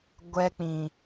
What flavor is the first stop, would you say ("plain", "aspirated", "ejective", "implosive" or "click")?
plain